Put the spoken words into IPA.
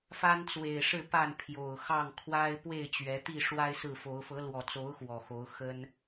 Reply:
f a˦ n t͡s w e˨˩ ɪ̯ ʂ ɻ̩˥˨ p a˥˨ n pʰ j o˨˩ ʊ̯ x ɑ˥˨ ŋ kʰ w a˦ ɪ̯ p w e˥˨ ɪ̯ t͡ɕ ɥ ɛ˨˦ t̪ i˥˨ ʂ w a˦ ɪ̯ s ɹ̩˥˨ f o˨˦ ʊ̯ f ɤ˨˦ l w ɔ˨˩ t͡s o˨˦ ʊ̯ x w ɔ˨˩ x o˨˦ ʊ̯ x ə˦ n

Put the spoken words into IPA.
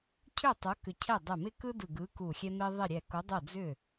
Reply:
cʰ ʏ˥˩ tˤ o˨˥ k ʏ˧˩ cʰ ɛ˥˩ dˤ ɛ˧˩ m ɪ˦ k ɯ˦ d ɯ˧˩ ɡ ɯ˨˥ k u˧˩ xʲ ɛ˦ m ɪ˦ ðˤ ɪ˥˩ ɾʲ ɛ˧˩ k o˨˥ dˤ o˥˩ d͡z ʏ˥˩

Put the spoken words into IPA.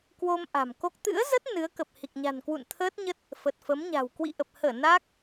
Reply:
k w o˧ m ʔ a̤˨˩ m k o˦˥ k̚ t̪ ɨ̰˧˥ ə̯ z ə˦˥ t̚ n ɨ˨˦ ə̯ k ə˨˩ p̚ h i˨˩ k̚ ɲ a̤˨˩ n k w ṵ˧˨ n t̪ʰ əː˦˥ t̚ ɲ ə˦˥ t̚ | f ə˨˩ t̚ f ə˨˦ m ɲ a̤˨˩ w k w ḭ˧˨ ʔ ə˨˩ p̚ h əː˧˩ n aː˦˥ k̚

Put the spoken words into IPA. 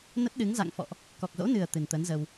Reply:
n ə˦˥ t̚ ɗ ɨ˨˦ ŋ z a̰˧˨ ŋ f ɔ̰˧˨ ʔ | k ɔ˨˩ k̚ z o̰˧˥ n ɨ˨˩ ə̯ t̪ ɨ˨˩ n t̪ əː˨˦ n z ə˧ w

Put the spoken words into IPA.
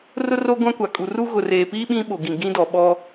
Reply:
r ʊ˦ r oː˦ ɡʷ ã˦ kʷ a˨ kʼ u˨ r u˦ ɣ ʊ˨ r eː˨ p iː˦ ɓ ĩ˦ ɓ o˨ ɡ ĩ˨ ɡ ĩ˦ d ɔ˨ ɓ ɔ˦

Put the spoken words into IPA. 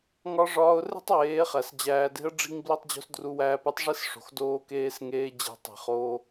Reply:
ŋ ɒ˦ ʐ ɒː˦ ʊ̯ r e̤˦ tˤ w eː˨˦ χ æ˨ s d͡ʑ æː˧ d e̤˦ ə̯ ɖ͡ʐ i̤˧ ŋ b l i˧ tˤ d͡ʑ o̤˧ s d r u˧ w æː˧ p e˦ tˤ ʐ e˦ s ʂ o̤˨ x d oː˧ k eː˧ s ŋ eː˧ d͡ʑ e̤˧ tˤ i̤˨ χ oː˧

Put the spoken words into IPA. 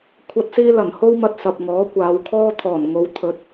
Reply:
kʷʰ ɐ˥ t̚ s iː˥ l ɐ˨˩ n h o˥ w m ɐ˧ t̚ s ɐ˨ p̚ ŋ ɔː˨˥ kʷ aː˨˧ w kʰ ɔː˥ t̪ʰ ɔː˨˩ n ŋ o˨˧ w t̪ʰ ɵ˨˥ t̚

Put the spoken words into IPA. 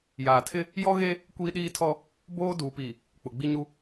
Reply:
j aː˨ tʰ ɪ˦ | j ɔ˦ ɣ e˦ | kʷ iː˦ ɗ iː˦ tʰ ɔ˦ | b oː˦ d uː˨ p iː˨ | k͡p ʊ˨ ɡ͡b i˦ ɲ u˦

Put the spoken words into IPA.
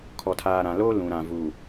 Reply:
kʰ ɔ˨ tʰ aː˨ ɾ ã˨ l oː˦ l ũ˨ ɾ ã˨ v u˨

